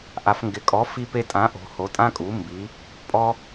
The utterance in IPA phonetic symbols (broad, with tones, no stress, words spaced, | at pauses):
ʔa˩˧fŋɡɪ˩˧kʼɔ˩˥ fi˧pe˧tʼã˩˥ʔo̤˩˧ ho˩˧tʼã˧kʼu˩˧ mbi˩˧ | pʼɔ˧